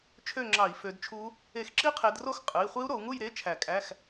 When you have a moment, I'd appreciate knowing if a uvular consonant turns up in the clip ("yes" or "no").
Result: yes